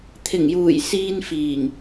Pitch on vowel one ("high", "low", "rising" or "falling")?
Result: low